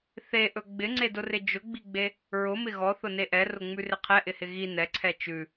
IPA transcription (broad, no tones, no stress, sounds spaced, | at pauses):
θ e ʔ ɵ ɡ͡b ɪ ŋ͡ǀ e d ʊ r ɪ d͡ʒ ʊ ɡ͡b i ɡ͡b e | ɹ ʊ m ɪ ɣ ɔ θ ʊ n e ʔ ɛ r ʊ ŋ͡m ʉ r ɪ qʰ ɛ ʔ ɪ h ɪ ɣ i n ɛ ǀʰ ɛ t͡ʃ ʉ